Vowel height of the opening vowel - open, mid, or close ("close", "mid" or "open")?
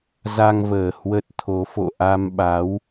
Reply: open